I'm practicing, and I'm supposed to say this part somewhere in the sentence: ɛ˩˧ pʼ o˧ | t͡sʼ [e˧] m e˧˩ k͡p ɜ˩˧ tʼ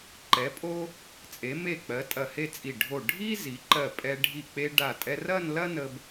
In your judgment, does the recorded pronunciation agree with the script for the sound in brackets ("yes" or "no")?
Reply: no